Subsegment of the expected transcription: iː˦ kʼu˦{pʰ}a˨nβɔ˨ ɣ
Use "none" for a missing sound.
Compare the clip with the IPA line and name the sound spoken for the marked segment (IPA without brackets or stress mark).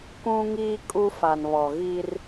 f